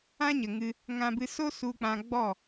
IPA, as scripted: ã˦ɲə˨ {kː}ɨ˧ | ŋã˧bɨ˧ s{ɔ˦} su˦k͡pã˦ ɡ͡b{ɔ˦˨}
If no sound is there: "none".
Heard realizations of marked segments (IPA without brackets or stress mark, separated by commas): ŋ, o˦, ɔ˦˨